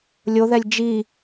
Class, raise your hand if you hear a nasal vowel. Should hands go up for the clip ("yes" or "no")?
no